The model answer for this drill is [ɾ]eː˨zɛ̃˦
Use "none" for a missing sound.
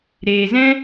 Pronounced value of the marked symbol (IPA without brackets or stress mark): ɾ